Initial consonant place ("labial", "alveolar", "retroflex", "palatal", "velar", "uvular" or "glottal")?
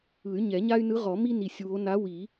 palatal